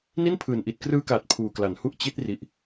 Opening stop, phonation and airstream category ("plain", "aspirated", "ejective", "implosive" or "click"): aspirated